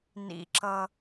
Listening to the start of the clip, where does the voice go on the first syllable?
high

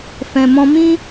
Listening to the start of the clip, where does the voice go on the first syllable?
low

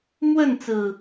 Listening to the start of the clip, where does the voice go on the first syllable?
falling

